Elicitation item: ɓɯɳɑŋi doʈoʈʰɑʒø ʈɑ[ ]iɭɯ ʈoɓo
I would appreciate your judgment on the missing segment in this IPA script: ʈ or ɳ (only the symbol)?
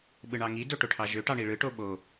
ɳ